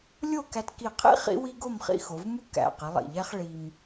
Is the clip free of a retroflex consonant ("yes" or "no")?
no